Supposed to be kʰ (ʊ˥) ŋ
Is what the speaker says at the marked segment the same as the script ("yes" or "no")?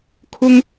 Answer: yes